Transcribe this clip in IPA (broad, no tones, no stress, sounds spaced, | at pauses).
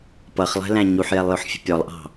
p ʌ χ lˠ ɛ̤ l æ̃ ɲ u ħ j ɛ lˠ j ʊ ħ fʲ ə̤ pʲ ɔ lˠ ʔ ɑ̤